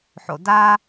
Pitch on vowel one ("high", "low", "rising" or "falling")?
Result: low